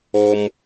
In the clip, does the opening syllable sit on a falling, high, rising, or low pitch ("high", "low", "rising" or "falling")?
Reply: high